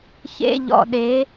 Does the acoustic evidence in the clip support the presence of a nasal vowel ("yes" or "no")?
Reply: no